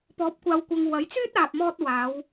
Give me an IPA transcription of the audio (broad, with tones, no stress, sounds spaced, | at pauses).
p ɔː˨˥ p̚ kʷ aː˨ w kʷ ɐ˨ ŋ w ɐ˨˥ j t͡s yː˥ t̚ aː˨ p̚ m ɔː˧ t̚ w aː˨˧ w